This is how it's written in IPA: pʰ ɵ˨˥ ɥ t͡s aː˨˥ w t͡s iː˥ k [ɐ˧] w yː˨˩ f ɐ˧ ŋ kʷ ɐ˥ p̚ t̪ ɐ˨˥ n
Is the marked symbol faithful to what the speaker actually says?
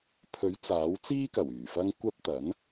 no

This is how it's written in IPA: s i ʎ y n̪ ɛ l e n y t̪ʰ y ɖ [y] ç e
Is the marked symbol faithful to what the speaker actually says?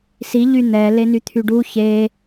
no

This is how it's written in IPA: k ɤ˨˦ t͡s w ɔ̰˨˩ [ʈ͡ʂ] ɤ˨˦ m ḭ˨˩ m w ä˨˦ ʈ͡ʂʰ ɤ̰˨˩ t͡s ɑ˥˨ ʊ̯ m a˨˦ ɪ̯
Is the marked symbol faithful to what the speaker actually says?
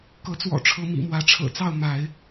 no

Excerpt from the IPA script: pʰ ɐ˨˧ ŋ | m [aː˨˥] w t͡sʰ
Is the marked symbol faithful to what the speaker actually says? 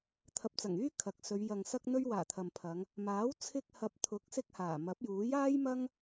yes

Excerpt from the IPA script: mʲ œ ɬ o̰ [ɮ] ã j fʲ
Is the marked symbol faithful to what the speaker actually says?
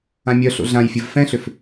yes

